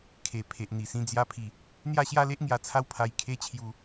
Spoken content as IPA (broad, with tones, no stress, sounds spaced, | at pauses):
kʰ e˨˩ pʰ e˨ ʔ n̪ i˨˩ s ĩ˧ d͡z j a˧ pʰ i˨˩ | n̪ j a˥˧ ɕ j a˦ l e˦ ʔ ŋ j a˧ t͡sʰ a˦ w pʰ a˧ j kʰ e˧ t͡ɕʰ j u˧